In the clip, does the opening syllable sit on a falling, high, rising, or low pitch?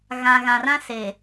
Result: low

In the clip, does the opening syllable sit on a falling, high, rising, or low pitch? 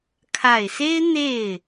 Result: low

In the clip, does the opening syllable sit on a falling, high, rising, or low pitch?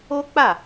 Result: high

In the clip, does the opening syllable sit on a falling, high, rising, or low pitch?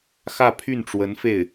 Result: falling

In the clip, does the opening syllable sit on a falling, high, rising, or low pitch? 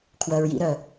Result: low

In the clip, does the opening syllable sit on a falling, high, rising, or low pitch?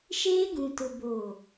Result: high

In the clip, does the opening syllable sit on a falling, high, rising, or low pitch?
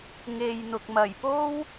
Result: low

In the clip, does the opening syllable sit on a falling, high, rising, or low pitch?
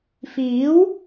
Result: rising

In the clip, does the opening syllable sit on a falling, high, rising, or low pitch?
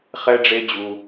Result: high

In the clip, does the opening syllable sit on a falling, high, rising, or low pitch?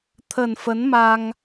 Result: low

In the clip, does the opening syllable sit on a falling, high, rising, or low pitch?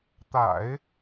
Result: low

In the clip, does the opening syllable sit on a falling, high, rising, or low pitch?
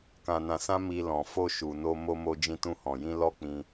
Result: low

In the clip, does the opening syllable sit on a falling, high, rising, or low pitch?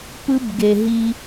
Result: high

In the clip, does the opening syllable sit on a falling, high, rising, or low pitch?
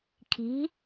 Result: rising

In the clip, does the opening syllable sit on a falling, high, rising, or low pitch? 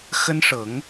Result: high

